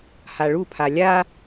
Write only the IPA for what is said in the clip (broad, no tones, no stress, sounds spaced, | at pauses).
h a ɭ u pʰ a lʲ a